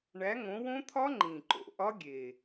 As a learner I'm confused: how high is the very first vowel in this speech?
low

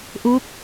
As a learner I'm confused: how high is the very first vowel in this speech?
mid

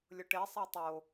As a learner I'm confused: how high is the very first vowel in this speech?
high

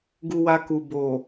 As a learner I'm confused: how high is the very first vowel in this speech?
high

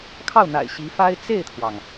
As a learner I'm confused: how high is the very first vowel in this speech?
low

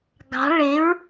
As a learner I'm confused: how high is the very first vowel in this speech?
low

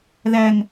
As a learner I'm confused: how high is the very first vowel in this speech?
low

